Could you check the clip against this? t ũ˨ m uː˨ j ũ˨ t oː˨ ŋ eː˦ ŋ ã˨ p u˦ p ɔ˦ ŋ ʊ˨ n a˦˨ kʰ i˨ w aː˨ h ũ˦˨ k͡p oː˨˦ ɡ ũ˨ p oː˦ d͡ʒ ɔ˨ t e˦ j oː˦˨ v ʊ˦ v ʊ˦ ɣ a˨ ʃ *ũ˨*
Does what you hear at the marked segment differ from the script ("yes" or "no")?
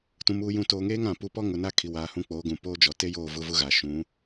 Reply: yes